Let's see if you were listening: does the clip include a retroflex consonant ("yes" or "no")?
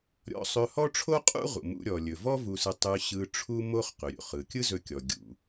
yes